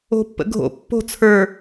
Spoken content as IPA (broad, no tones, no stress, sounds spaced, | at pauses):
o̤ pː ə̰ ɡʱ o̰ pː o̤ t͡sʰ ə˞